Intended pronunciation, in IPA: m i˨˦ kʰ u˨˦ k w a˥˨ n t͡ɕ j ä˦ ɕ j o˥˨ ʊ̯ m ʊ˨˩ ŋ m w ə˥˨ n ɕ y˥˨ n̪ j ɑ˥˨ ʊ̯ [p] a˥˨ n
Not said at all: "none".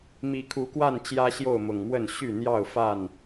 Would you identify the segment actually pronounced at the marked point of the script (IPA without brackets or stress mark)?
f